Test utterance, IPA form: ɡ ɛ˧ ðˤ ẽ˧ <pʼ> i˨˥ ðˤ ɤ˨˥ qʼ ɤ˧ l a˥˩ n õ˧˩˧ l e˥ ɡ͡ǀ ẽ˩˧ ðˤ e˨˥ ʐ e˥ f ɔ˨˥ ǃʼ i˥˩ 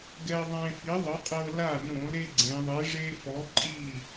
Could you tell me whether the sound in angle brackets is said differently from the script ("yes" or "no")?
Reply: yes